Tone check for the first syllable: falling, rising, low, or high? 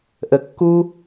low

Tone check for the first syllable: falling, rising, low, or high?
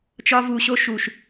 high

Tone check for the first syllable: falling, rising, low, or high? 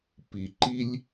low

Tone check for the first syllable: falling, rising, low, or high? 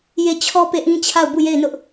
falling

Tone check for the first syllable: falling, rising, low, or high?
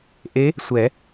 rising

